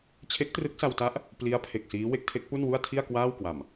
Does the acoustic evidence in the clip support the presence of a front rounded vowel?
no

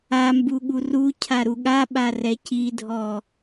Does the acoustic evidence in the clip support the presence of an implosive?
yes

